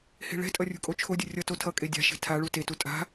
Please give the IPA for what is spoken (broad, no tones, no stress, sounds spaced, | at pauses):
h e̤ ɭ ɛ̤ tʼ ʌ rʲ ṳ kʼ o t͡ʃʰ o dʲ ɯ rʲ ʌ t o tʰ ʌ kʼ e dʲ a̤ ʃ e̤ tʰ a ɭ u t e t u tʼ a̤